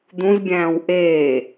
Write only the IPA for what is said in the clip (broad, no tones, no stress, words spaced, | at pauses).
d̪ũzbʲæ̃ːw ʔeː